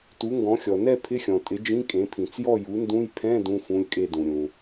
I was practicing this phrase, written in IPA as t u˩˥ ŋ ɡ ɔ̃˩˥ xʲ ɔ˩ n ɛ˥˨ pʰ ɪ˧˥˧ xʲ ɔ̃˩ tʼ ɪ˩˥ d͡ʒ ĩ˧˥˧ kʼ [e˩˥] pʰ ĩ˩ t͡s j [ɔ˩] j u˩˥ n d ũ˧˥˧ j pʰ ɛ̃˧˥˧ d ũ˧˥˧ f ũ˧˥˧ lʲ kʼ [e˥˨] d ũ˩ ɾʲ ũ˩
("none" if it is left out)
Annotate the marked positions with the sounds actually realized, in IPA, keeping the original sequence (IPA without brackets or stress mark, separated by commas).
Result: ẽ˩˥, ɔ˥˨, e˥˨